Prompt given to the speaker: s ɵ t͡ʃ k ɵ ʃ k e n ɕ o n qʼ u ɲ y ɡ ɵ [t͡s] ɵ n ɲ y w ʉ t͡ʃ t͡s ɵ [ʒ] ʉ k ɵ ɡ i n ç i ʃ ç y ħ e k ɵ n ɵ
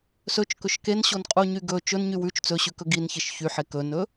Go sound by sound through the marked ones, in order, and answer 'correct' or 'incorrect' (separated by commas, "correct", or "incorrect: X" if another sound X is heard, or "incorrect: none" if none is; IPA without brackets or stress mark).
incorrect: t͡ʃ, incorrect: ɕ